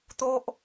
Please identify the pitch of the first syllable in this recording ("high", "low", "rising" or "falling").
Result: high